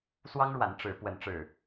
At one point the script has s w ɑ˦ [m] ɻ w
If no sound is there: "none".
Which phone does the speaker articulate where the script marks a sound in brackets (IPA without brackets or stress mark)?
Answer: ŋ